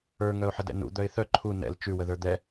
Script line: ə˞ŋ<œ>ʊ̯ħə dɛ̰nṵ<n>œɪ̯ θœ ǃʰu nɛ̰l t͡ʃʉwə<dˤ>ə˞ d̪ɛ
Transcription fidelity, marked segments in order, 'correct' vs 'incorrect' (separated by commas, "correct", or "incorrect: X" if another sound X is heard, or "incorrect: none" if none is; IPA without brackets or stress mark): correct, incorrect: d̪, incorrect: ð